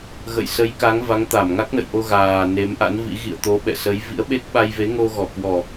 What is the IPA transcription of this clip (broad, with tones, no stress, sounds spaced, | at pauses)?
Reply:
ɣ ə̰˧˨ j s ə˨˦ j k a˨˦ ŋ v a˨˦ ŋ t̪ a˧˩ m ŋ a˦˥ k̚ n ə̰˧˨ j ʔ o˧ ɣ aː˨˩ n e˨˦ m ʔ a̰˧˥ n v ḭ˧˥ ɣ ḭ˧˨ ə̯ t̪ o˨˦ ɓ ɛ̰˧˨ s ə˨˦ j v ḭ˧˥ ə̯ ɓ e˦˥ k̚ ɓ a˧ j v e˨˦ ŋ o˧ ɣ ɔ˧˩ k w ɔ˨˩